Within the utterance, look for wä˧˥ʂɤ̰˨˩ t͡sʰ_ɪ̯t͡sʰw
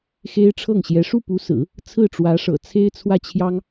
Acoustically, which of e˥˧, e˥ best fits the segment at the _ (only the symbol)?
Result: e˥